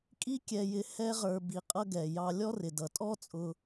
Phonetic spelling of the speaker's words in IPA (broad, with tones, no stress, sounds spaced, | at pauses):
kʼ i˥ kʲ ɛ˧ j ɪ˧ h ɛ˥ ʁ ə˞˧ b i˧ qʼ ʌ˥ ɡ ɛ˩ j ɑ˧ lʲ ɔ˥ r ɪ˩ d ʌ˩ tʼ ɔ˥ t͡sʼ ʊ˧